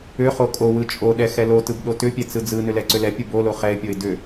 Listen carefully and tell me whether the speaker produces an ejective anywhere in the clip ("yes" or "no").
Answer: yes